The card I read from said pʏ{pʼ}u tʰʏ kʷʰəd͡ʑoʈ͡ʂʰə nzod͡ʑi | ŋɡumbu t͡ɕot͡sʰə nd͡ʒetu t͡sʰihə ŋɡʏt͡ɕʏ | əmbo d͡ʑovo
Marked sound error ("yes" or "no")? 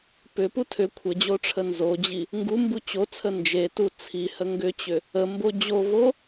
yes